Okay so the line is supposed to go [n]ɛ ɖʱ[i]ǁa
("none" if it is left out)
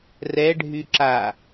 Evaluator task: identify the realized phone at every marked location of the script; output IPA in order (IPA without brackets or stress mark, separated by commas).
r, y